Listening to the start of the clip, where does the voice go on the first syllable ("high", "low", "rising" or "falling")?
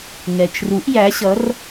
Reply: low